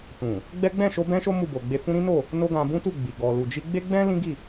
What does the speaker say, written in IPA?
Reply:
t ũ˨ | ɡ͡b ɛ˦ ɡ͡b ɛ̃˦˨ ʃ o˧ b ɛ̃˦ ʃ o˦ m u˦˨ b o˨ ɡ͡b e˧ f ũ˦ ɾ ĩ˦ n o˦˨ | n o˦ ɡ ã˧ b ũ˦ t u˦˨ ɡ͡b i˨ ɡ ɔ˨ l u˨ d͡ʒ i˧ ɡ͡b e˦ ɡ͡b ɛ̃˦ l ĩ˦ ɡ i˦˨

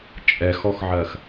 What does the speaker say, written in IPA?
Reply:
t͡ʃʼ ɛ x ɔ x ʕ ɜ x

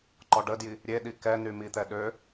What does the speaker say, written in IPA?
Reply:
ǃ ɔ ɖ ə d j i | ɾʲ e ɗ i k ɛ n y m i t̪ ɛ ɗ ø

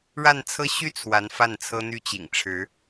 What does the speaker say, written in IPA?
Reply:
ɻ a˥˧ n t͡sʰ ɤ˥˧ ɕ y˥˩ t͡sʰ w a˧˥ n f a˥˩ n t͡sʰ ɤ˥ n̪ y˥˩ t͡ɕ ḭ˨˩ ŋ ʈ͡ʂʰ ɻ̩˧˥

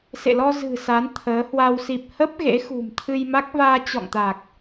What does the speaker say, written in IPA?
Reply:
s ḛ˧˨ l ɔ˧ z ɨ̤˨˩ s a˨˦ n t̪ʰ əː˨˦ h w a˧ w s i˨˩ p̚ h ə˦˥ p̚ ɣ ḛ˧˥ x ṳ˨˩ m t̪ʰ ɨ˧ j m a˦˥ k̚ v aː˧ t͡ɕ ɔ̰˧˨ ŋ t̪ a˨˩ k̚

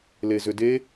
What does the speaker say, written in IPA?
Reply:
l e z ʏ d e

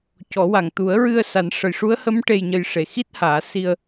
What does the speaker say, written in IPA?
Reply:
c ɔ˨˩˦ w a˨˩ ŋ t̪ u˨˩˦ ə̯ ɹ ɨ˧ ə̯ s a˨˩˦ n ʂ ə˨˩ j ʂ u˧˥ ə̯ h ə˧˥ m ʈ e˧ j ɲ ə˧ j ʂ e˨˩ x i˦˥ t̚ h aː˨˩˦ s i˧ ə̯

